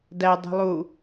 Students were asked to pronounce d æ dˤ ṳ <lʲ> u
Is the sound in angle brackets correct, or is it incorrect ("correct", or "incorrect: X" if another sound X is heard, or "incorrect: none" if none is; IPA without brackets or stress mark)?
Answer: incorrect: lˠ